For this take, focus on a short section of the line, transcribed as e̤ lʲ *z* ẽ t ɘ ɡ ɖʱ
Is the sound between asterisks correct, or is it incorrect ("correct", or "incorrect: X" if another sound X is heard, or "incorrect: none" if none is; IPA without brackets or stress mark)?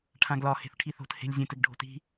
incorrect: zʲ